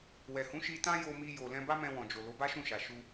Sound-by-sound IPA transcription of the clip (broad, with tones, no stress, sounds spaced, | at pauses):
w ɛ˨ h ũ˨˦ ʃ i˧ t ã˦ j o˧ m i˧ j o˨ l ɛ̃˧ b a˦ m ɛ̃˧ w ɔ̃˨ d͡ʒ o˨ l o˨˦ b a˦ ʃ ũ˦˨ ʃ a˨ ʃ u˧